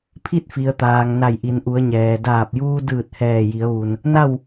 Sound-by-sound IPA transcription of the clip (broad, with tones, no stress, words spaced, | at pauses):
pʰi˥˨t̚fi˩ə̯t̪aː˩ŋ na˧˩jʔi˩˧nʔu˩˧ə̯ɲɛː˩ daː˧˩p̚juː˧dɯː˧˩t̚ hɛː˧˩ji˩˧ə̯ʋu˩n | na˥˨w